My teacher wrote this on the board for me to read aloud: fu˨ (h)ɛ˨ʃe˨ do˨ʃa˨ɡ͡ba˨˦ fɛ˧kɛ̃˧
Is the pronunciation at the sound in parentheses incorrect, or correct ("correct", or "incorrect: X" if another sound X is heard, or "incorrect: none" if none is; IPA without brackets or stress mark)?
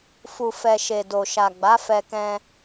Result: incorrect: f